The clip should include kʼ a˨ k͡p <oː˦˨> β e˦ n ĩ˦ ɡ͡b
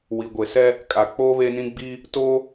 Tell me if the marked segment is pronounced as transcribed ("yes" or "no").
no